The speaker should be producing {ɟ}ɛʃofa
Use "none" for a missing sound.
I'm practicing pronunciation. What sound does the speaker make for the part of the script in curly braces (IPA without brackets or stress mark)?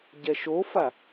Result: ɟ